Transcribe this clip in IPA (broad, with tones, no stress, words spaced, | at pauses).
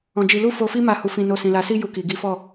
ɔ̃˧d͡ʒi˧ lu˦fo˧fi˦ ma˦˨hu˧ fĩ˧no˧ sĩ˨la˨si˧ju˨ ki˨ɡi˨˦fɔ˦˨